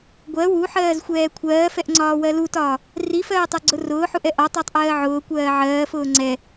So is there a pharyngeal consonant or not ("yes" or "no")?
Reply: yes